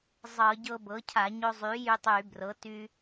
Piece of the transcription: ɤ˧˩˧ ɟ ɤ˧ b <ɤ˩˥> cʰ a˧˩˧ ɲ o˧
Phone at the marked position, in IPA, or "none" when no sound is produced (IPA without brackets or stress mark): ɤ˩˥